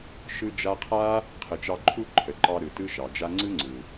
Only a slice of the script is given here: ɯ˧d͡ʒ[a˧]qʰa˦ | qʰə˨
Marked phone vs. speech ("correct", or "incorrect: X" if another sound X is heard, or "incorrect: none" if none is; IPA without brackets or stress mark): correct